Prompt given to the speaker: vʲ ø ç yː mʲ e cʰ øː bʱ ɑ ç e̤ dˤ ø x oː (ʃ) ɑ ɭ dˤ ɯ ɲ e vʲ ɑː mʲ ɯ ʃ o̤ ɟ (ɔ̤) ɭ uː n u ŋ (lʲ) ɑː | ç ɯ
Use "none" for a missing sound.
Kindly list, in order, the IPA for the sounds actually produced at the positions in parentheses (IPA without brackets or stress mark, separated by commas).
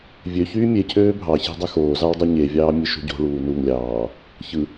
z, o̤, lʲ